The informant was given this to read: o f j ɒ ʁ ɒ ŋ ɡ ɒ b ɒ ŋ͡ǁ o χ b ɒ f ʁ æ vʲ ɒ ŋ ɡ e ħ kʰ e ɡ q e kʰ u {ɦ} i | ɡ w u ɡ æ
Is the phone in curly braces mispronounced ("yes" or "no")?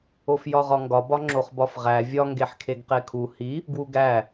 yes